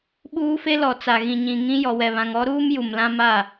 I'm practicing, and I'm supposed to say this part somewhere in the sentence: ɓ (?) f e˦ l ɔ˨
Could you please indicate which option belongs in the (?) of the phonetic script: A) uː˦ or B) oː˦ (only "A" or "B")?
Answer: A